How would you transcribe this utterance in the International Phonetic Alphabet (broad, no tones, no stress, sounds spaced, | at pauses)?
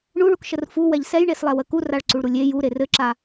ɳ u ɭ u k ʃ ə r f u w ɛ ʎ s ɛ j ɳ e s lˠ ɛ w ə k u r a ɭ ǀ u ɭ ɾ u lʲ e j u ɾ e r ɘ ǁ a